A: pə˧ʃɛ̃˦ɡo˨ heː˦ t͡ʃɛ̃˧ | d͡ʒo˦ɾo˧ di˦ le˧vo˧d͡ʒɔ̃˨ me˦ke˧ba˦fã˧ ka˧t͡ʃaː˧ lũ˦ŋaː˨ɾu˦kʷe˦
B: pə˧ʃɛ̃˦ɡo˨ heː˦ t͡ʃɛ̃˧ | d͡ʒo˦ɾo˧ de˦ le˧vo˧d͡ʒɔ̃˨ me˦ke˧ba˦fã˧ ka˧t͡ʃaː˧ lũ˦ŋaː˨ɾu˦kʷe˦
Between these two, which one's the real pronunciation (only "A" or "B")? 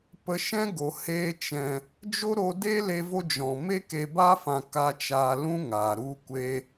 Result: B